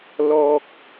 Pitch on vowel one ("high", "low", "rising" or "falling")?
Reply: high